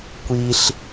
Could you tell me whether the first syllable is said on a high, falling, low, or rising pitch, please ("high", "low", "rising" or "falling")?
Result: high